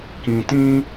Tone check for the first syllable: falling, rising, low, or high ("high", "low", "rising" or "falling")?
low